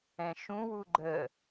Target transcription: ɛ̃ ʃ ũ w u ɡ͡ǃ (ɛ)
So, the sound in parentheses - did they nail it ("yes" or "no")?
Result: no